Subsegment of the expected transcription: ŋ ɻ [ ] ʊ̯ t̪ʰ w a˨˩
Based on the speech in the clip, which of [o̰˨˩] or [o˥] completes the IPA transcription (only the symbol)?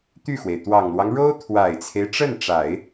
o˥